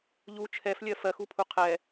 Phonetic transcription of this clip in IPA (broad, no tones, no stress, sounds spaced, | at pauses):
ʎ u t͡ʃʰ ɛ f lʲ ɜ f ɜ x u pʰ u qʰ ɛ